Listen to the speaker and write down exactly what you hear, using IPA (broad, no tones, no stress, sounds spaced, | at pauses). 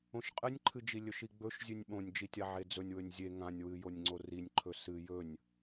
õ ʃ qʼ ɨ nʲ ǃʰ ɨ d͡ʒ i lʲ ɵ ʃ i ɡ͡b ɵ ʃ zʲ ʉ nʲ ɓ õ nʲ d͡ʒ i tʲ a ʕ e d͡z ɵ nʲ w ɵ nʲ zʲ e ŋ ã nʲ w ɨ j o nʲ ŋ͡ǀ o r i nʲ ǃʰ ɵ s ɨ j ɵ nʲ